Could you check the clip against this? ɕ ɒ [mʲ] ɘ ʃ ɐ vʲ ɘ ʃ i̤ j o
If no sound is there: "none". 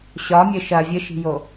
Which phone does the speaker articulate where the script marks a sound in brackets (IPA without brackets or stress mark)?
mʲ